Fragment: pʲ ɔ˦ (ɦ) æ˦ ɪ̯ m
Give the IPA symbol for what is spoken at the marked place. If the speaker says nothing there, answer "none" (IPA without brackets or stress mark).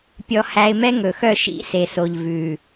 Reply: h